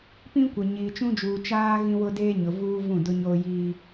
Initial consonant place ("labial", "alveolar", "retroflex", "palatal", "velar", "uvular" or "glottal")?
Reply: labial